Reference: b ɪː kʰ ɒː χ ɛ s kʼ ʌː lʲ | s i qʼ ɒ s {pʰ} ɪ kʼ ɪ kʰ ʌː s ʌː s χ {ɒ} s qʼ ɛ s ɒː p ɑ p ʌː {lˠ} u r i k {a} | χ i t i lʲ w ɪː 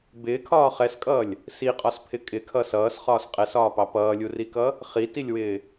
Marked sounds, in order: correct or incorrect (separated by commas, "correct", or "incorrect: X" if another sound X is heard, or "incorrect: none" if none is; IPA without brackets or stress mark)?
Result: correct, incorrect: ɒː, incorrect: lʲ, incorrect: ʌ